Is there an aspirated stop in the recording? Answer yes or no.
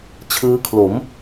yes